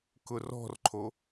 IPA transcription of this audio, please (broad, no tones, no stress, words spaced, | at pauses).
kʊrɔ̤rǃʰo